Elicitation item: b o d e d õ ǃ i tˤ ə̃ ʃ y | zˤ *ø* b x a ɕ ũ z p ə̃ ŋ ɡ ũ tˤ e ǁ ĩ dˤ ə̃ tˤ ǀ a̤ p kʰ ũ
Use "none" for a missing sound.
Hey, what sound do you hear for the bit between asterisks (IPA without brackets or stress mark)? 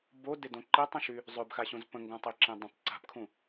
ø